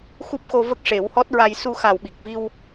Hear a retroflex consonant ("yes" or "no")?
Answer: yes